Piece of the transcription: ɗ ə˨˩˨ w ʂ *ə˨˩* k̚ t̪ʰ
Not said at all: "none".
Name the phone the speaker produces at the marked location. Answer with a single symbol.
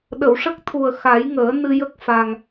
ə˦˥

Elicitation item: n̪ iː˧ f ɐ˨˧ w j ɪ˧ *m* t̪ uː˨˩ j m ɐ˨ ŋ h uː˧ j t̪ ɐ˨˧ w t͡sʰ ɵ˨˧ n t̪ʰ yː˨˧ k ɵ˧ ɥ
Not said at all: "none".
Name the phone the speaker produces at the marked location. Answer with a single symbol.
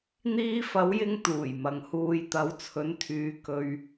ŋ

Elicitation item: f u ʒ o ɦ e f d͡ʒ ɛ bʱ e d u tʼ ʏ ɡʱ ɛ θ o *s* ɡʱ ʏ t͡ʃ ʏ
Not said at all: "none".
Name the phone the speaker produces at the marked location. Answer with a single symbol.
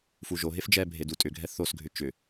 s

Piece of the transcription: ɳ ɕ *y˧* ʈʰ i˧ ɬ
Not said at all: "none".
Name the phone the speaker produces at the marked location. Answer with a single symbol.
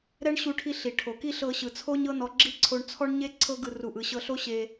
u˧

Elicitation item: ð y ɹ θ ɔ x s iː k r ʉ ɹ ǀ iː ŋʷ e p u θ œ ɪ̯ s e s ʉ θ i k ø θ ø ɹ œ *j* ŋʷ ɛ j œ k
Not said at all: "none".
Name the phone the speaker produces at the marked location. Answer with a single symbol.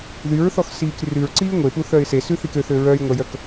j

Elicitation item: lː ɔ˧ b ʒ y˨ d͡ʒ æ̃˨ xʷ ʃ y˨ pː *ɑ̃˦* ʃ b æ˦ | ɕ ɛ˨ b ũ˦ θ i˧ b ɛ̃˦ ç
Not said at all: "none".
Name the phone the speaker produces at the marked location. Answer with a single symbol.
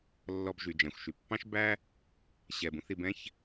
ɑ̃˦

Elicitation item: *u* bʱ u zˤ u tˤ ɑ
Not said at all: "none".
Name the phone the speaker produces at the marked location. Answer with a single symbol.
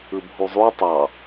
ɯ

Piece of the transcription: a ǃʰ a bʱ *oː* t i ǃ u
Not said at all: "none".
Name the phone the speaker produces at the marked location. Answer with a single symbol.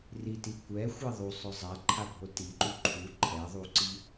o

